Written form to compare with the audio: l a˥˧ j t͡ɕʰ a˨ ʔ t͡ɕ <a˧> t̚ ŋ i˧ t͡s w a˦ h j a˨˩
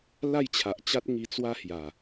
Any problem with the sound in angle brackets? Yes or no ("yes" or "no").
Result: yes